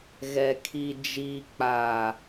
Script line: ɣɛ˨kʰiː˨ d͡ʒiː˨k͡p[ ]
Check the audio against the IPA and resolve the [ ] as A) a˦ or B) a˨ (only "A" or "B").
B